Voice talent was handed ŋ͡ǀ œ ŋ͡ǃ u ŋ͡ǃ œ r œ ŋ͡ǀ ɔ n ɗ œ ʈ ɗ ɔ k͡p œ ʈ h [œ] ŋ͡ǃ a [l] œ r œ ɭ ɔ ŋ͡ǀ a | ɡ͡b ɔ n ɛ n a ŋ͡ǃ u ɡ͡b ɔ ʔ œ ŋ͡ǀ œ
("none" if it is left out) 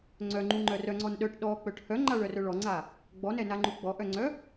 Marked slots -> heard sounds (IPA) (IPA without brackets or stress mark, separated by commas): œ, ɭ